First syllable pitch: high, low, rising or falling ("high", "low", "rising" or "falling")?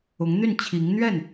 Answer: rising